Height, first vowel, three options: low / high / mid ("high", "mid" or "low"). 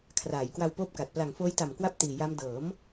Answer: low